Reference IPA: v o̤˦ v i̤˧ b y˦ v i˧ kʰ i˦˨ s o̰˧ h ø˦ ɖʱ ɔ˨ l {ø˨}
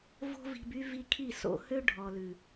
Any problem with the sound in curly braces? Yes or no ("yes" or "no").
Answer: yes